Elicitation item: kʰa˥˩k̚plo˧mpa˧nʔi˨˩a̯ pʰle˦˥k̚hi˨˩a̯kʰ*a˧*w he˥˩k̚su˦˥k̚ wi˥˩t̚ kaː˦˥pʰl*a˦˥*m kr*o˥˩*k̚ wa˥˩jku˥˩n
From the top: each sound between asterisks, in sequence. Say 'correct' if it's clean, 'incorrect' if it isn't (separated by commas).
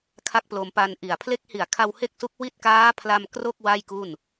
correct, incorrect, correct